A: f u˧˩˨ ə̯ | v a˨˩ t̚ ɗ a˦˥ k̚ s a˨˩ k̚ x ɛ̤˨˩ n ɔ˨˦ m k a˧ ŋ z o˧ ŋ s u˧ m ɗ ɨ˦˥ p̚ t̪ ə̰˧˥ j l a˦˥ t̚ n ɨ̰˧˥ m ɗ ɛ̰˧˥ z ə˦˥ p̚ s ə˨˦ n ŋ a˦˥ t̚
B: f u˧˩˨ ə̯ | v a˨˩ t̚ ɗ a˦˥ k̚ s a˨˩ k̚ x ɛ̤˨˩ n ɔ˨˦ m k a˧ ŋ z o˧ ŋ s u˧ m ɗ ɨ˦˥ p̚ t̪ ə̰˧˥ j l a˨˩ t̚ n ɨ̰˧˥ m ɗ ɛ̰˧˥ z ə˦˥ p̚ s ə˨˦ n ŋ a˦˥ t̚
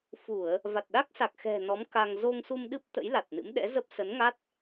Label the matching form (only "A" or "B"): B